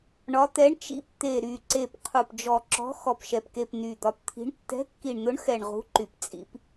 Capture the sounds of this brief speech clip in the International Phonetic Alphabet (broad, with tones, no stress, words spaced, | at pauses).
ɳɒ˨˦ t̪ɛ˨˦ɳt͡ʃḭ˨˦p t̪e˨˩ɾy˨˩ǀe˨˩p qʰu˨˩pd͡ʒɔ˨˩ǁɔ̤˨˦ xɔ˨˩pʃɛ˨˩pke˨˩p ny˨˩d̪ɒ˨˦pt̪ʰi̤˨˦ɳ tːɛ̤˨˦kːi˨˩ɳn̪ʊ˨˦ɳxɛ˨˩ɳ ʁṳ˨˦ ǃy˨˩pt͡sʼḭ˨˦p